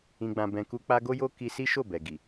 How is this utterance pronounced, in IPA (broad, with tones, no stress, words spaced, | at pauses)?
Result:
ĩ˧ɡ͡bã˧bɛ̃˧ ku˧k͡pa˧ ɡo˦jo˦ ki˧si˦ʃo˦˨ bɛ˨ ɡi˨